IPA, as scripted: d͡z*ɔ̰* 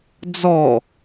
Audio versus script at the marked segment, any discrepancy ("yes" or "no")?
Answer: yes